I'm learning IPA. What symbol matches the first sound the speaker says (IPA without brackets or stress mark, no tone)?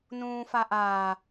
n